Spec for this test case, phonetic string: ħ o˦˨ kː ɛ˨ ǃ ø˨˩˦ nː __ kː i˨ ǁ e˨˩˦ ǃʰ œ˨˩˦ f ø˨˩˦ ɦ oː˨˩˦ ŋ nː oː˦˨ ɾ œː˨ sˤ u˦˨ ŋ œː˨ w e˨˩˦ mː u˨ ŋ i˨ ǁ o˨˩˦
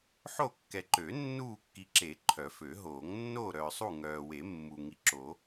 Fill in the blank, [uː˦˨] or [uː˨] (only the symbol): uː˦˨